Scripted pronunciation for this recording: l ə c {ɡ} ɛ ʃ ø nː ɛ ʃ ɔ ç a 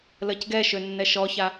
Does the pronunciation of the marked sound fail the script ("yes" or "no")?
no